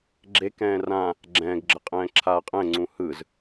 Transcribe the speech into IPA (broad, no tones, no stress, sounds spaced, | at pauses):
ɡ͡ǁ e k ɛ̃ː r ã | ɡ͡ǁ ɛ̃ː ɡ ɡ͡ǁ ə qʼ ɛ̃ː ǁʰ aː qʼ ɛ̃ ŋ͡ǀ ũ h ɯ z